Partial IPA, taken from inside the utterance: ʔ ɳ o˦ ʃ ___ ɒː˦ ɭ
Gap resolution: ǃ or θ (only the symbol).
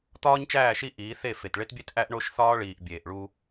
θ